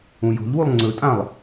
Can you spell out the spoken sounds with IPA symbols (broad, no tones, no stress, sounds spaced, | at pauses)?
ũ j o̤ ʎ w u lˠ ŋ͡ǀ ɵ tʼ ã lˠ